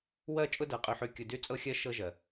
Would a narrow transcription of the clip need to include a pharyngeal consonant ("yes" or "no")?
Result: yes